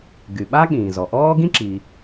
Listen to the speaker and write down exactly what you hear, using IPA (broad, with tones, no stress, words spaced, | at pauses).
ɡy˩ɓa˥ ɠĩː˩zɔ˩ʔɔː˥ ɡĩ˥ǁi˩